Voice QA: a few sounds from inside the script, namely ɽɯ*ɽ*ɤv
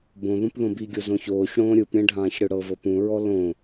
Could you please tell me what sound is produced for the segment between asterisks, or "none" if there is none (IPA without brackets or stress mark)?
ɽ